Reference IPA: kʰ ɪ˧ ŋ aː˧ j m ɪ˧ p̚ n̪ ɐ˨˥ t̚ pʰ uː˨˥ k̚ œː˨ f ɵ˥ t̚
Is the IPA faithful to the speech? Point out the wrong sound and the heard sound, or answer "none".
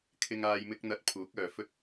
p̚ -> k̚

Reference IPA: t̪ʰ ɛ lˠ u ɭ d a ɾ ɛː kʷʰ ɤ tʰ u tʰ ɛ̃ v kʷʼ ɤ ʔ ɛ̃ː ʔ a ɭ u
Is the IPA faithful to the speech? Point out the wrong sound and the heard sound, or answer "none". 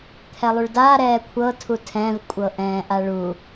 none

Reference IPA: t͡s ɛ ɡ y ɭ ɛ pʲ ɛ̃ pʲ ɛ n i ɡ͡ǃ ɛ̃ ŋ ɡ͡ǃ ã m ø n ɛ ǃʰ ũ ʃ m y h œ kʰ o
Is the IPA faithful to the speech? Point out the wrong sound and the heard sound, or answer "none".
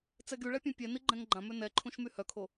none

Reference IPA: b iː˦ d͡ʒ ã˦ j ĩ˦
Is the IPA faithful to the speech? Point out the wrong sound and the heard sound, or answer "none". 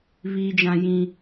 b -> β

